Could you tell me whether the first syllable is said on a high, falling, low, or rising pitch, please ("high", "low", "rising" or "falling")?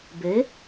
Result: rising